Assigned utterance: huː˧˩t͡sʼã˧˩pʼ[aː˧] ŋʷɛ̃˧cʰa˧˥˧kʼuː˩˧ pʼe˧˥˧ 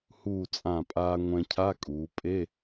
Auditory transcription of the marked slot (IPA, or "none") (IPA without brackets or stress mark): aː˧